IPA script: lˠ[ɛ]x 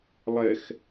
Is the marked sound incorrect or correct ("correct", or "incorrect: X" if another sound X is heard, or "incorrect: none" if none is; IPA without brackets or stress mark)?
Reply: correct